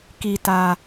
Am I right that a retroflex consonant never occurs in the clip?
yes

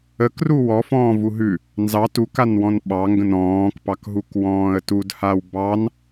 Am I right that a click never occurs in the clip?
yes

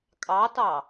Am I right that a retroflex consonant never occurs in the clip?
yes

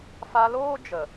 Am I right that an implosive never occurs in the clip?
yes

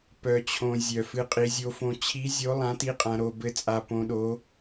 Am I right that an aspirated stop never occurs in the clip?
no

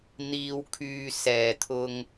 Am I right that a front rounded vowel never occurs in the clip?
no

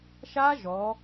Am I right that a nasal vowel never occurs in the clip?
yes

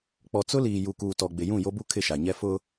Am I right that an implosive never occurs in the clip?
yes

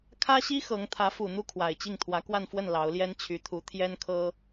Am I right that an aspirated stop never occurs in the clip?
no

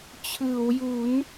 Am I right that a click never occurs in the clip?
yes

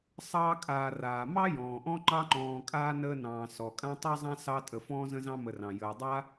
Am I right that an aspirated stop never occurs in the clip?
yes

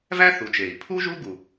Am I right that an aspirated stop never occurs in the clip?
no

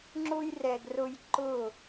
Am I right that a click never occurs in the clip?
no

